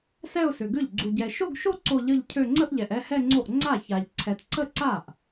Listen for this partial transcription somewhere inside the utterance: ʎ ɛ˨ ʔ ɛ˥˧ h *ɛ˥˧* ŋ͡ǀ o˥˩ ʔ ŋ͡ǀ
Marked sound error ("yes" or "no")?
no